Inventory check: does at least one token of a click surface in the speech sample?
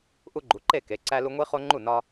yes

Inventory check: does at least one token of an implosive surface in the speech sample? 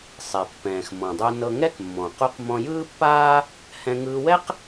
no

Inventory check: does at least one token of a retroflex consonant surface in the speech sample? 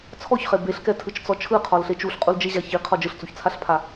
no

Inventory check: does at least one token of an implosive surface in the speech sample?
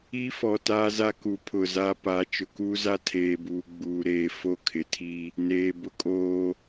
no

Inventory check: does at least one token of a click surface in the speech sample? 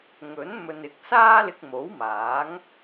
no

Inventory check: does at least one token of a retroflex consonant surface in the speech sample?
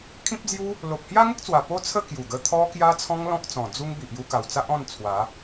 no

